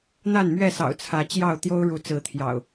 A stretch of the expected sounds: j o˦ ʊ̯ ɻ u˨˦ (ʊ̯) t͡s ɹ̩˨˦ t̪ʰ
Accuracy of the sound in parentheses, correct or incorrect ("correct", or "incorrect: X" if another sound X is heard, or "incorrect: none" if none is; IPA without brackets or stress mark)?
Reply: incorrect: none